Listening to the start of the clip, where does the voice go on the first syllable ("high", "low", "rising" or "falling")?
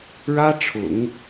high